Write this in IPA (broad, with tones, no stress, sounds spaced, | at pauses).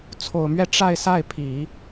t͡sʰ o˨˩ ʊ̯ m ɥ ɛ˥˧ ʈ͡ʂ a˥˧ ɪ̯ s a˥˩ ɪ̯ pʰ i˨˩˦